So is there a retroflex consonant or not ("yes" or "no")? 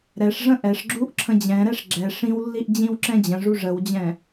yes